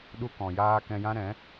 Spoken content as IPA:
ɗ u˧ k ɔ̃˨ j aː˧ k ɛ̃˧ j ã˦ ɾ ɛ̃˨˦

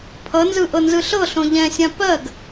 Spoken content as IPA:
pʰ ʌ n z ɯ ʔ ɤ n z ɯ ɬ ɤ ɬ õ ʎ ɛ̃ sʲ ã p ɜ ɡ

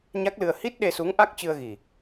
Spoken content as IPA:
ɲ a˦˥ k̚ l ɨ˧ ə̯ h i˦˥ t̚ ɗ e˧ s u˨˦ ŋ ʔ a˦˥ k̚ t͡ɕ ɨ˧ ə̯ ɣ i˨˩

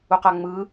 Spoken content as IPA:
u q a ŋ͡m ɯ

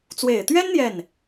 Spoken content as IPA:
t͡s w e˨˩ ɪ̯ t̪ ɥ ɛ˥ n n̪ j ɛ˥˩ n

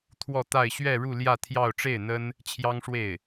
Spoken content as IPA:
t̪ʰ w ɔ˥˧ t̪ a˥˧ ɪ̯ ɕ ɥ ɛ˥˧ ɻ u˥˧ l j ä˥˧ t̪ʰ j ɑ˥˧ ʊ̯ ʈ͡ʂ e˥˩ ɪ̯ n̪ ə˥ n | t͡ɕʰ j ɑ˥ ŋ ʂ w e˥˩ ɪ̯

